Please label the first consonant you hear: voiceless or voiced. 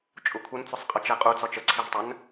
voiceless